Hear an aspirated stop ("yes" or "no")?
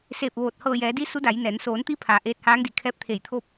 yes